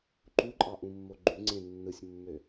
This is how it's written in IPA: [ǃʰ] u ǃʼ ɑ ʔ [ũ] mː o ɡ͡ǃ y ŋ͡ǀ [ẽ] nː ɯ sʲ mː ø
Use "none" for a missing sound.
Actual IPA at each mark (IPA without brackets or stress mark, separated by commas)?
ǃ, ũ, ẽ